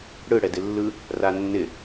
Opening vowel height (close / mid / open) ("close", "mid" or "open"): close